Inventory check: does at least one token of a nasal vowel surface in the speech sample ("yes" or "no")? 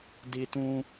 yes